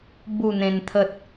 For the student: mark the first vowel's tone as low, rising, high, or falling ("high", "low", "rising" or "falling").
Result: falling